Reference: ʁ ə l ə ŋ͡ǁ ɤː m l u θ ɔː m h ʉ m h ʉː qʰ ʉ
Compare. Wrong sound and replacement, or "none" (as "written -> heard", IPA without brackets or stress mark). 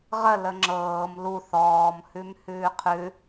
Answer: none